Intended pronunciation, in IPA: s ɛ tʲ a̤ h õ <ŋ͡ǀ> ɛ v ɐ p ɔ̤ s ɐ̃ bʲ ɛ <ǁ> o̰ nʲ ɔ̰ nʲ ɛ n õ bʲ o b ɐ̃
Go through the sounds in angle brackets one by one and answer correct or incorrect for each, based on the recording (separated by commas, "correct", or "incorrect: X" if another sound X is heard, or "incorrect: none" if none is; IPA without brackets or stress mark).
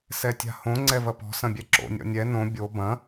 correct, correct